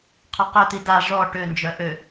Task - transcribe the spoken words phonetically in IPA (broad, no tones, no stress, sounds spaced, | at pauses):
qʰ ɔ q œ t̪ i d a ʐ ɔ ʈ ø n d͡ʒ œ ʔ ø